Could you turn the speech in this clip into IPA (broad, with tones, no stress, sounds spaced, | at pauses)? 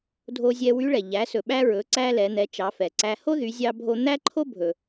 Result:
dʱ o˧ zʲ ɛ˧ w y˧˥ ɭ ɛ˩ ʎ æ˩˧ s ɵ˩ ɓ æ˧ ɹ ɵ˩˧ ǀ æ˧ l ɛ˩˧ n̪ ɛ˩˧ t͡ʃ ɑ˩˧ f ɛ˩ ǀ æ˧ h o˥ ð y˩˧ zʲ ɑ˧ bʱ o˧ n̪ æ˥ ǃʰ o˥ bʱ ɵ˩